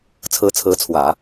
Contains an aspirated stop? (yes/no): yes